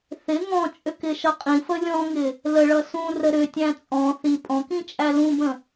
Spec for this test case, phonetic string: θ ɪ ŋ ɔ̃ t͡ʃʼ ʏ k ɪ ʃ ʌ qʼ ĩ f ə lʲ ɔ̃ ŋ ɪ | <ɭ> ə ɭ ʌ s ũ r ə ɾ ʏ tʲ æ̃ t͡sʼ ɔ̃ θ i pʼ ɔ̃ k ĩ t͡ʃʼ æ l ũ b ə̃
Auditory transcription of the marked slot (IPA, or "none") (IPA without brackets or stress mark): l